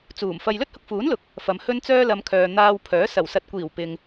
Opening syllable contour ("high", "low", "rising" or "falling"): low